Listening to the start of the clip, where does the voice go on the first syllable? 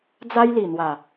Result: high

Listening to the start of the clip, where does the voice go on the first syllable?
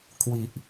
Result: low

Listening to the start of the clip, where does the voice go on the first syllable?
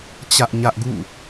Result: high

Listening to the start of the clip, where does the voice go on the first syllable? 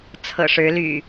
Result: low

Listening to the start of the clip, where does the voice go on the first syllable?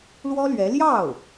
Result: high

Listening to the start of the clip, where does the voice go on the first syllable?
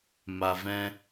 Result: low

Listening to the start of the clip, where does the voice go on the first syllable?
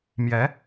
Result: rising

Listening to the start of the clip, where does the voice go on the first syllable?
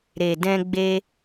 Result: low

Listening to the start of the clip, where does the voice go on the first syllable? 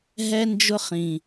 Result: high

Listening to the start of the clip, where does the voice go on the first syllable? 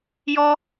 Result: high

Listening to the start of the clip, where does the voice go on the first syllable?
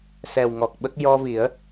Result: low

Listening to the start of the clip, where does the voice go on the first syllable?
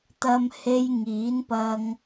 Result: high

